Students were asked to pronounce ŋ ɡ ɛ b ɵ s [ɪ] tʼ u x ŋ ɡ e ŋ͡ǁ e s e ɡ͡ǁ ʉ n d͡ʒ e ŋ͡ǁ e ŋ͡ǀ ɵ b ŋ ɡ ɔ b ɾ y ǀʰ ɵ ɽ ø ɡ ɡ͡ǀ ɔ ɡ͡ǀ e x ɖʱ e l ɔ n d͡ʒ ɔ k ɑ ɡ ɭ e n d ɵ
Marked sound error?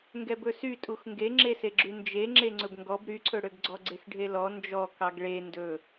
yes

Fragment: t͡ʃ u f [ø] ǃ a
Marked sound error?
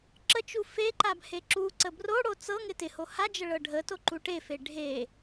yes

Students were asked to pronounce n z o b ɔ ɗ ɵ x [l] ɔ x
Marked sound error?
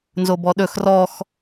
yes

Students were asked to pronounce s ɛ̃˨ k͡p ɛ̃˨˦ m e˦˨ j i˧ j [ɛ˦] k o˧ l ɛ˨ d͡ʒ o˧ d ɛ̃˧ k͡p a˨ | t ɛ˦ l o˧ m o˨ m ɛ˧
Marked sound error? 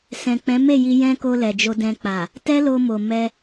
yes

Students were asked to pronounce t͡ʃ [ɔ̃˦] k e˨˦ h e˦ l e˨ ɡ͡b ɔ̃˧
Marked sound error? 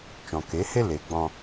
yes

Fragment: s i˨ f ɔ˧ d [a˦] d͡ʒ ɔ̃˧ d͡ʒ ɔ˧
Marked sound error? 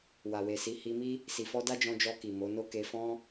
no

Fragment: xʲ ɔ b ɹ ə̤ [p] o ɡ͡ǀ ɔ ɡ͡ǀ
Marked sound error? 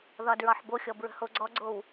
yes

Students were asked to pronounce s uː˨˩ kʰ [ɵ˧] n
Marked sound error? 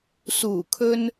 no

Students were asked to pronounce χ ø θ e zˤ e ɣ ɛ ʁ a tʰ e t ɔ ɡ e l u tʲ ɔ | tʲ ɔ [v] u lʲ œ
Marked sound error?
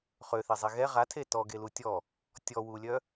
yes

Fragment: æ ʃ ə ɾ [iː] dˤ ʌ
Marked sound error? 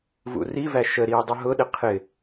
no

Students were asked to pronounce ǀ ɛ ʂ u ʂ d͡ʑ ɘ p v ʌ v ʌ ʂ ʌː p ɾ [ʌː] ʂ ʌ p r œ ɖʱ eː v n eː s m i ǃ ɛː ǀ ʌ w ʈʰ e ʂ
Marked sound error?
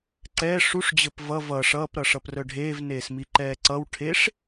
yes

